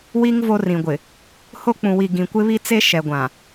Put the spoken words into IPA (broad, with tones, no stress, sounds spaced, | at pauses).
w i˦ ŋ v o˦ r ĩ˨ ɡʷ ɪ˨ | h o˦ k͡p ũ˨ w i˨ ɡ ĩ˨ kʷ ɪ˦ β i˦ t͡s e˦ ʃ ɛ˨ ɡʷ ã˨